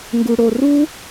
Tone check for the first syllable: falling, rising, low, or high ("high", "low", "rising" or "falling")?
low